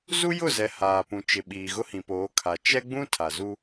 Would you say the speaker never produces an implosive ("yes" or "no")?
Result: no